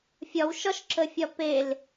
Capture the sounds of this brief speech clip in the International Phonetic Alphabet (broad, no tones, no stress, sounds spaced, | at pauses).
fʲ ɒ w ʃ ɒ ʃ ǁ ə fʲ ɒ p e l